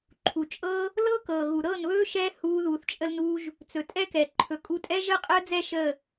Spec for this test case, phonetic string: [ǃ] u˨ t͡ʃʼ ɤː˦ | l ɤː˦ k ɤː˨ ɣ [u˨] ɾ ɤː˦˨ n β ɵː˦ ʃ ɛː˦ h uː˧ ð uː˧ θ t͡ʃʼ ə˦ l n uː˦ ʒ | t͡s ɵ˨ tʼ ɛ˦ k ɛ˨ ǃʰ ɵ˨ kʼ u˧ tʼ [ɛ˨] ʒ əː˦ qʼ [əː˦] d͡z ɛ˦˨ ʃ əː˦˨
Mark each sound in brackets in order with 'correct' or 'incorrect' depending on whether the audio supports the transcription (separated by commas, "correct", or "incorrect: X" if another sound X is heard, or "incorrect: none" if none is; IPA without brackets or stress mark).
incorrect: ǃʰ, correct, incorrect: ɛ˦, correct